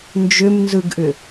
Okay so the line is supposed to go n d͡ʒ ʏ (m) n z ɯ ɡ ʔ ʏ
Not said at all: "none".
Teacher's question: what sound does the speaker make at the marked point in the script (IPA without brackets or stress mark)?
m